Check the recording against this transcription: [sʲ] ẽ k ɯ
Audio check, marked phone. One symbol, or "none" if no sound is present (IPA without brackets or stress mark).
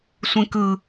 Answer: sʷ